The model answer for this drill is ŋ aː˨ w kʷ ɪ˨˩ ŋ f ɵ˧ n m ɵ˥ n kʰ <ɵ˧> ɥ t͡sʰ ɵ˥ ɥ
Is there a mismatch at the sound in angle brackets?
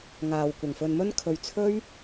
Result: no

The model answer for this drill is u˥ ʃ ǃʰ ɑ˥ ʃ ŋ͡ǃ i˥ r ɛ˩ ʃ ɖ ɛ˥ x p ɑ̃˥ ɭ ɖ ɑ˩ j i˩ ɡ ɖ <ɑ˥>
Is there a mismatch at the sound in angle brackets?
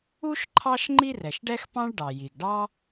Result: no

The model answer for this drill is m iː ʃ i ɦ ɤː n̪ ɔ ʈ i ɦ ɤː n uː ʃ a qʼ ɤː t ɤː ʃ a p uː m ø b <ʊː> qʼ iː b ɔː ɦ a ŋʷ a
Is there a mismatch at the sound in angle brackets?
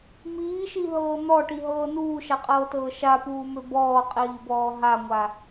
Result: yes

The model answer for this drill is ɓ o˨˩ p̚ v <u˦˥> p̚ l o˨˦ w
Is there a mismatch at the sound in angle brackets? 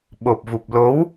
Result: yes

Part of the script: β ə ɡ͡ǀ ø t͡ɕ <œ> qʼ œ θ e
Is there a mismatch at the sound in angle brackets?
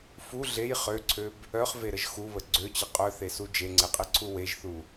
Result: yes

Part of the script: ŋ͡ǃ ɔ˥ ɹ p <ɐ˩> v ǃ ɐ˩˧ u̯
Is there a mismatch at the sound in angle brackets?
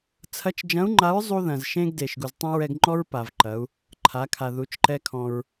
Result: yes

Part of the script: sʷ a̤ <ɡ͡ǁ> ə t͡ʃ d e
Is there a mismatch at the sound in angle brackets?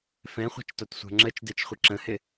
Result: yes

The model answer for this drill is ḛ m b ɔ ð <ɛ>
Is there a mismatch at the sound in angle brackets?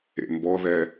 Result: no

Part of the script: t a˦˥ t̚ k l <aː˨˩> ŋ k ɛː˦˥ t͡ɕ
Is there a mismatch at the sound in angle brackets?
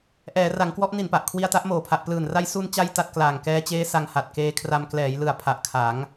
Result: no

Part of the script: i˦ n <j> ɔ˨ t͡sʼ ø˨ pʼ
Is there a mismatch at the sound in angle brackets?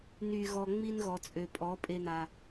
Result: yes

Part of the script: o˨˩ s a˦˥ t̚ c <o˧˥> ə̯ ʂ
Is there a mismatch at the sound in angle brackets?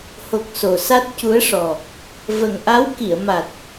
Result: yes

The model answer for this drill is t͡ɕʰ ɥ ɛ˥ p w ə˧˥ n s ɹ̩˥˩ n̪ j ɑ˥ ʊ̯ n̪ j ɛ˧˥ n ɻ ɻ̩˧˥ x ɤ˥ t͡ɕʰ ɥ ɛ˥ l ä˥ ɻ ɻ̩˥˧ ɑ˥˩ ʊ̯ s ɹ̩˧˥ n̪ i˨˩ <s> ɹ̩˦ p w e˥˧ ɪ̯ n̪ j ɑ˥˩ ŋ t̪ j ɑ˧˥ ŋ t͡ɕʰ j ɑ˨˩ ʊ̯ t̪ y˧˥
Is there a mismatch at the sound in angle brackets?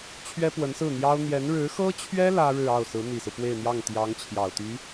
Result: no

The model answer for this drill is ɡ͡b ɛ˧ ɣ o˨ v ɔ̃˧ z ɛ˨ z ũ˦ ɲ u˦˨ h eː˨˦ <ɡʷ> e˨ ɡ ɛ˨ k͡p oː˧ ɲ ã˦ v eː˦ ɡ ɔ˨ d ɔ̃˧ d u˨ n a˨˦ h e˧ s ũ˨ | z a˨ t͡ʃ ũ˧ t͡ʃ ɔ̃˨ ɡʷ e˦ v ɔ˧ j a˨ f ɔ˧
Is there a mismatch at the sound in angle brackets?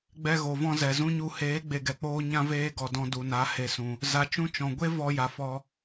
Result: yes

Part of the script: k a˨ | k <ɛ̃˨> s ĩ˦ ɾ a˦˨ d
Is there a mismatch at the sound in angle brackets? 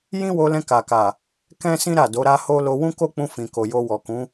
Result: yes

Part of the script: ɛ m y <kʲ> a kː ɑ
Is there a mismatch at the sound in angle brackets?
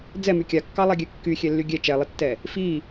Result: no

